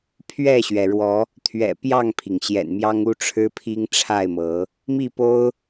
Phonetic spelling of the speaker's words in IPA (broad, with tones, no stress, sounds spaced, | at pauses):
pʰ ɥ ɛ˥˨ ɕ ɥ ɛ˩ ɻ w ɔ˨˦ | t̪ʰ ɥ ɛ̰˨˩ p j ɑ˥˨ ŋ pʰ i˩ ŋ ɕ j ɛ̰˨˩ n m j ɑ˦ ŋ u˦ ʈ͡ʂʰ ɻ̩˦ pʰ i˦ ŋ ʈ͡ʂʰ a˥˨ ɪ̯ m ɤ˨˦ | m i˥˨ p o˦ ʊ̯